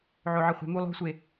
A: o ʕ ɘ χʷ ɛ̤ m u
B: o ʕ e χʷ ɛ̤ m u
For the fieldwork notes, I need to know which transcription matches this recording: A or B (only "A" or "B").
A